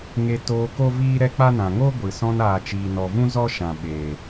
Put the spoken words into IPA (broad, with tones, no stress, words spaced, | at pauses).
ŋe˧ toː˧ ko˦viː˦ ɾɛ˦k͡pa˦nã˨ ŋo˦ ɡʷɨ˨ sɔ̃˧naː˨t͡ʃiː˨ nɔ˨vũ˦ zɔ˦ʃã˨ ɓeː˨